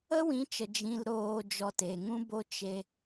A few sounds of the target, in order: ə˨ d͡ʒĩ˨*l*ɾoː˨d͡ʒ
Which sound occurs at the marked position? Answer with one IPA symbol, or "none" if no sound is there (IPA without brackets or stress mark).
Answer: l